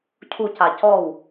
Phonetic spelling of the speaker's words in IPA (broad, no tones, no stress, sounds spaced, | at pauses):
cʰ u c a c ɔ w